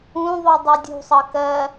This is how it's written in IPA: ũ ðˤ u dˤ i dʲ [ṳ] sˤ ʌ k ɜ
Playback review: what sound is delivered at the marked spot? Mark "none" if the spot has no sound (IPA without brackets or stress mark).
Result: ṳ